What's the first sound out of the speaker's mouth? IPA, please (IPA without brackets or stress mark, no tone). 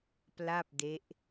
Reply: p